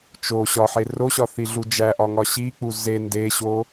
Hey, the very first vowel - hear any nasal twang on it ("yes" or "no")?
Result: no